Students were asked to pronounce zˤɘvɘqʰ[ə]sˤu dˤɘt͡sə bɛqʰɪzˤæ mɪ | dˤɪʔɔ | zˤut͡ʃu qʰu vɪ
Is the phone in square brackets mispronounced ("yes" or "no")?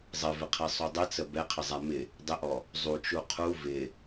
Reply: yes